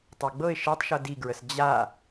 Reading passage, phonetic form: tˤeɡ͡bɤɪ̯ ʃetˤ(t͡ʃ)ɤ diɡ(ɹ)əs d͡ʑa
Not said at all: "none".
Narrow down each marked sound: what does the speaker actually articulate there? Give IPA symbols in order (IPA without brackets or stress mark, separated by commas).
ʃ, ɹ